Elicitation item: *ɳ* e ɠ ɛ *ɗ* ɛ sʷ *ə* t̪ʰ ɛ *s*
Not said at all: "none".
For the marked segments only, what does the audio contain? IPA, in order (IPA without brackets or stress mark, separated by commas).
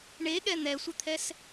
ɳ, n̪, ɪ, s